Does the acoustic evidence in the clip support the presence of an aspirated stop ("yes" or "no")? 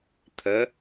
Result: yes